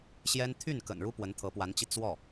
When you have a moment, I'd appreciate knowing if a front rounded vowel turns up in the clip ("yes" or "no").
yes